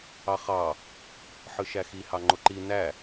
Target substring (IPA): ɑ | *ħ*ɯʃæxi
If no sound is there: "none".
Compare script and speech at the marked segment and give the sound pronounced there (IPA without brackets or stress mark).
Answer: ħ